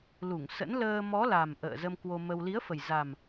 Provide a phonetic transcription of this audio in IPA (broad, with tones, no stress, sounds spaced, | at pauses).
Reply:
l u˧˩ ŋ s ə̰˧˥ n l əː˧ m ɔ˨˦ l a˨˩ m ʔ ə̰ː˧˨ z ə˧ m k w o˧ m ə˧ w l i˨˦ ə̯ f ə˨˩ j z a˨˩ m